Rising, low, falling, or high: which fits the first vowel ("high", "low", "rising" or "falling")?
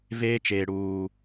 high